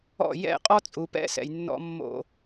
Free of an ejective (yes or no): no